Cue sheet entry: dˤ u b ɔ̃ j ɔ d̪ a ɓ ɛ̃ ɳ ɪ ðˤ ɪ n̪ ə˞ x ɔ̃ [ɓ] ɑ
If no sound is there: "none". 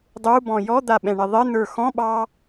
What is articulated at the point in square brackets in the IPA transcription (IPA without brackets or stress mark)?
ɓ